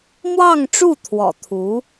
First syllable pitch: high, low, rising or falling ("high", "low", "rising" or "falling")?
falling